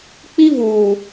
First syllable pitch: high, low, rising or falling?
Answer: high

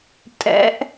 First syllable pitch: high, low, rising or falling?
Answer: rising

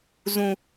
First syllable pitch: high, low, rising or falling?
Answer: low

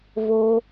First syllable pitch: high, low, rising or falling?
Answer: low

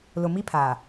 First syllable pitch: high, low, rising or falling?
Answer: low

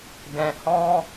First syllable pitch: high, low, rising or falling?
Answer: low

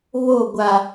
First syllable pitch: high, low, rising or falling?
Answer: falling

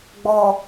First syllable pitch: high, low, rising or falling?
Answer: low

